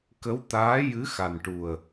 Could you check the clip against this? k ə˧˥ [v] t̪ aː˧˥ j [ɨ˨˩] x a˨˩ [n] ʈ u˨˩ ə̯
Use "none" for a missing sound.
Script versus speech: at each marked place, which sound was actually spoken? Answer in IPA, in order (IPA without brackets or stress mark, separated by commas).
w, ɨ˧˥, n